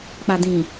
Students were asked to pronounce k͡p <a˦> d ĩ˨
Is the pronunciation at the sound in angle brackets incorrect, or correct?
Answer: incorrect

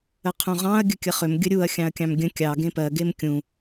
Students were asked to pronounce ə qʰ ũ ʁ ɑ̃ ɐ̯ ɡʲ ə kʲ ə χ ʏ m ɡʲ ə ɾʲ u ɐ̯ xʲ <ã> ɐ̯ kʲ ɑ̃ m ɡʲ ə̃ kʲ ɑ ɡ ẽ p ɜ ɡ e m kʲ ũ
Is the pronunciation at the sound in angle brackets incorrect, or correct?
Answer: incorrect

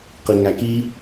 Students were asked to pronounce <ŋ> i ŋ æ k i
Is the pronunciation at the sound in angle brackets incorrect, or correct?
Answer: incorrect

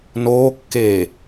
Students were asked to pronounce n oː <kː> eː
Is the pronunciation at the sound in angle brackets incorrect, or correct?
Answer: correct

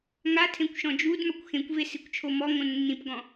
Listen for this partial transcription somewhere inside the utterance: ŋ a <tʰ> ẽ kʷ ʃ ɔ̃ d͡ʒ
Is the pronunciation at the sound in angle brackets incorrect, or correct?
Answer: correct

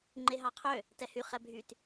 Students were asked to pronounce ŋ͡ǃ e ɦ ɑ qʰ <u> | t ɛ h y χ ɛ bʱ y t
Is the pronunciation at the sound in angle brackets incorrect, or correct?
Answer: incorrect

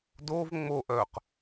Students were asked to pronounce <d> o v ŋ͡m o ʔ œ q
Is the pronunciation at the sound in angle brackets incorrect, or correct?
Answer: correct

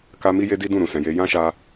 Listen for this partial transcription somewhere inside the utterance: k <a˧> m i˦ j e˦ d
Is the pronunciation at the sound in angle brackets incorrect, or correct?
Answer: correct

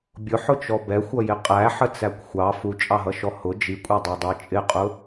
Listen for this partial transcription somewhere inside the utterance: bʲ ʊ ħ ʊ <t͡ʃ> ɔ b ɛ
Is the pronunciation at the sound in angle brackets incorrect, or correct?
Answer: correct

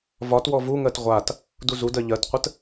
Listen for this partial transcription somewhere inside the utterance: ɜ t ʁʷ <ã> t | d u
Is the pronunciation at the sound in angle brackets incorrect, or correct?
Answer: incorrect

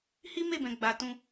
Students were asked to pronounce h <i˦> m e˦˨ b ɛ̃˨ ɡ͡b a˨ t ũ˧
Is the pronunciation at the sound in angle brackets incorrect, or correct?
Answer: correct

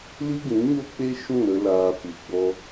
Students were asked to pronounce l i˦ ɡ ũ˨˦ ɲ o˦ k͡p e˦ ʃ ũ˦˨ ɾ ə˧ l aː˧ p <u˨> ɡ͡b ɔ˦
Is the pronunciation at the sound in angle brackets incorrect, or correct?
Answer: correct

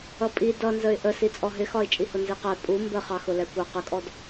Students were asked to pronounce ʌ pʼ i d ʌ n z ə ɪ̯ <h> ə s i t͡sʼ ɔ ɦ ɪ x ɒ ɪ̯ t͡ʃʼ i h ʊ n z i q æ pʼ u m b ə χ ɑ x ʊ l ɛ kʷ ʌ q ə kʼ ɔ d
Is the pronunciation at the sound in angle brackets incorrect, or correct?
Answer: incorrect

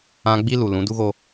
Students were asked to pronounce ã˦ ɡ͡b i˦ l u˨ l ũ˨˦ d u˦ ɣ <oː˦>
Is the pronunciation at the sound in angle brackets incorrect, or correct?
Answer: incorrect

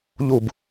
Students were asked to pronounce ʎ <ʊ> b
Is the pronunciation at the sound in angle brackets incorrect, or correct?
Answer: incorrect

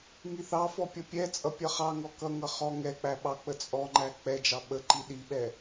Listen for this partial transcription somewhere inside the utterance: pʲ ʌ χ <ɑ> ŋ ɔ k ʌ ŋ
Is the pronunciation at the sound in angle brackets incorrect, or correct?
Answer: correct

